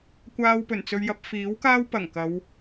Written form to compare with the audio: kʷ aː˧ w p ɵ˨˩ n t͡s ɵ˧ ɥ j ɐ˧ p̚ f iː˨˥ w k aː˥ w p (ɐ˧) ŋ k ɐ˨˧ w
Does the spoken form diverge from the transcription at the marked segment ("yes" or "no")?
yes